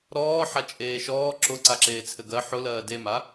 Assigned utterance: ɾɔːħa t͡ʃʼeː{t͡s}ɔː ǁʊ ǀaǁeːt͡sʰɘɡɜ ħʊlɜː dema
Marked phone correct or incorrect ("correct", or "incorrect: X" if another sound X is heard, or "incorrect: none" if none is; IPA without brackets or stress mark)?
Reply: incorrect: ʃ